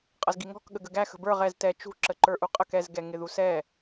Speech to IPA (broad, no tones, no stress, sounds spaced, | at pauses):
qʼ ʌ z ɡ i ŋ ɔ̤ k ɠ ə ɡ ə ɡ æ x ə̤ b ə˞ ʁ ɛ z t ɛ t͡ʃ ṳ ǁ ə ǃ ə˞ ʔ u qʼ ə k ɛ z ɡ ɛ ŋ ɪ ð u s ɛ